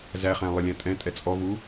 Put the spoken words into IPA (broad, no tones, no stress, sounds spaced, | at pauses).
z æ χ æ̃ lˠ ɘ lʲ æ̃ tʼ ɛ̃ tʼ ɛ t͡sʼ ɔ v u